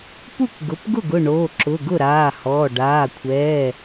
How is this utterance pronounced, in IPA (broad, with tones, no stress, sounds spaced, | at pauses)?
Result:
p u˥˩ k ɡ ʊ˩˧˩ p ɡ ʊ˥˩ ɡ ʊ˥˩ ɳ oː˩˧˩ ǁ ʊ˩˧˩ ɡ ʊ˥˩ ɾ aː˩˧˩ h ɔː˩˧˩ ɖ aː˩˧˩ kʷʰ ɛː˩˧˩